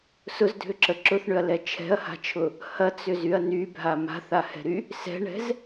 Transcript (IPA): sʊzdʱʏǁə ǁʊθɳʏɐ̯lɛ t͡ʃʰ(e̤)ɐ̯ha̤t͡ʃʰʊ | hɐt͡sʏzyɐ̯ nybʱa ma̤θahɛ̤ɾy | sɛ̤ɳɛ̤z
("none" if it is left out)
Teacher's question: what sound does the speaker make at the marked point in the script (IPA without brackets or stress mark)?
ɛ̤